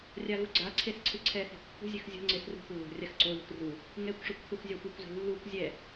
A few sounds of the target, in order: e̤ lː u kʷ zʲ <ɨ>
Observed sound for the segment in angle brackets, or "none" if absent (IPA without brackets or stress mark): ɛ